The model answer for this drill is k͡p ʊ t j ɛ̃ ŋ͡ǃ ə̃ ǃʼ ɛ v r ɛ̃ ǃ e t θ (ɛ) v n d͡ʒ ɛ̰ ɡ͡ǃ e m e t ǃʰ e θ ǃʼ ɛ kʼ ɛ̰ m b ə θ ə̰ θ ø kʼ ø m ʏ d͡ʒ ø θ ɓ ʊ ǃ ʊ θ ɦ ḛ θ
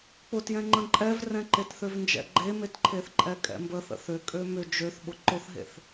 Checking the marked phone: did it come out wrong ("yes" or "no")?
yes